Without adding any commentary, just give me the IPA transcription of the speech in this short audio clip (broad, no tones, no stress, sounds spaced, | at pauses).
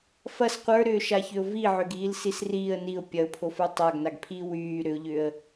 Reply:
f ɐ s qʷ ə˞ ɾ ʏː ʃ a ç ʏ ʊ̯ v i ʕ ʏ ɡ iː l s i s r iː ə̯ n i ʊ̯ pʲ ɐ ʊ̯ pʰ o f ə˞ tˤ a ɡ n a ɡ pʰ iː w yː ɾ ʏ ʊ̯ ʎ ʏ ə̯